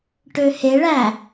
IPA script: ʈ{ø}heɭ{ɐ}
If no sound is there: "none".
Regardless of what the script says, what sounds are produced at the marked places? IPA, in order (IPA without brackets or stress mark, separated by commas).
ø, æ